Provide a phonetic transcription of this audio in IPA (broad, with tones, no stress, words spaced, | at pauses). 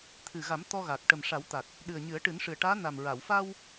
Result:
t̪ʰɨ˨˩ɣa˨˩˦m t̪ɔ˧ɣa˨˩k̚ ʈə˨˩m ʂa˨˩˦wt̪a˨˩k̚ | ɗɨ˨˩ə̯ɲɨ˨˩˦ə̯ ʈɨ˨˩˦nʂɨ˨˩ə̯ʈaː˧˥ na˨˩m ɹa˨˩˨wfa˧w